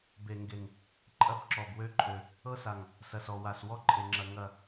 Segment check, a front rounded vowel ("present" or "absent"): present